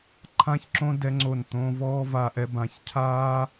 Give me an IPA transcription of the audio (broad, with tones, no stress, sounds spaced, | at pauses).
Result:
ǃʰ ã˦ ç ǁ õ˦ d ɛ˦ ŋ͡ǀ o˦˨ n t̪ õ˦ v ɔː˦ v a˧ ʔ ɛ˧ b ã˨˦ ç cʰ aː˦